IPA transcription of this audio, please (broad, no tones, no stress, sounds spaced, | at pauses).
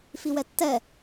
f i w ɛ tː ɛ